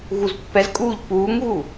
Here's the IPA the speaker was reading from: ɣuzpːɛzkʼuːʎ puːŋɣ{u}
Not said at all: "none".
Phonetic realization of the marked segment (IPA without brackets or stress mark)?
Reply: u